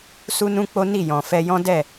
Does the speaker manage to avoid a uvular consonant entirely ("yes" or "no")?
yes